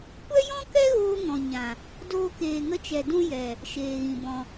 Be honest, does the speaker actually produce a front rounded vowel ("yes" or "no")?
no